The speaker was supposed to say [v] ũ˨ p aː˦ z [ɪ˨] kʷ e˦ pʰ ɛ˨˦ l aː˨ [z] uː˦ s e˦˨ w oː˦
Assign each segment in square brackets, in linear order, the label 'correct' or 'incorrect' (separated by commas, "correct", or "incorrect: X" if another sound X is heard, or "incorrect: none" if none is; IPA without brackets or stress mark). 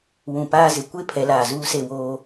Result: incorrect: w, correct, correct